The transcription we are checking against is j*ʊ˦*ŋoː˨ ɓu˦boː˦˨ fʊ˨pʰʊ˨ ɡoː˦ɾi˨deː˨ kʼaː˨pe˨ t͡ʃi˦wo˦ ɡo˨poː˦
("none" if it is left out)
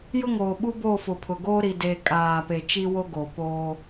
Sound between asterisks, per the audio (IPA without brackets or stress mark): ʊ˦